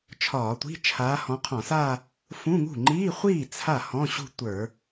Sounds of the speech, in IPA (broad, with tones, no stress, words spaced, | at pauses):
t͡ʃʰɒː˧˩˧tʷi̤˧˥˧ t͡ʃʰaː˨˦hɔ̃˨˦qʰɔ̃˧˩˧sa˥˧ | fũ˧˥˧ŋṳ˥˩ ŋ͡ǃiː˧˥˧χʷiː˥˩ t͡sʰa˥˩ hɔ̃˧˥˧ ɕṳ˥˧tʷə˞˧˩˧